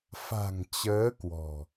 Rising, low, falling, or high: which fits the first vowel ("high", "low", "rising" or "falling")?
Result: low